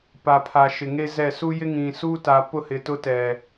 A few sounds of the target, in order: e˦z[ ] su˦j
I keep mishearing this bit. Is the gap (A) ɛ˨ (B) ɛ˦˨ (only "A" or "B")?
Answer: B